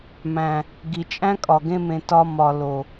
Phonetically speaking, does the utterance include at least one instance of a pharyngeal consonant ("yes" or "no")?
no